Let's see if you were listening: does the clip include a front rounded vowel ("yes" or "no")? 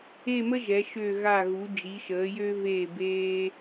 yes